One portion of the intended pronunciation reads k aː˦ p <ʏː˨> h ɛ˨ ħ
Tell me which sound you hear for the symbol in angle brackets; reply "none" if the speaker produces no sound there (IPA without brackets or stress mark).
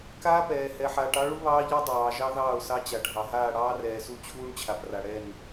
ɛː˨